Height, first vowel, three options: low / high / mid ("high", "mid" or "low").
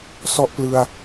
mid